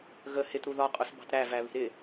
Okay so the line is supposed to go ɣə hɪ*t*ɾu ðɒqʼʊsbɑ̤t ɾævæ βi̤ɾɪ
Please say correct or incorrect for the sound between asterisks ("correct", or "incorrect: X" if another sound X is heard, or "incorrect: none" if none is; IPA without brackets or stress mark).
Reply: correct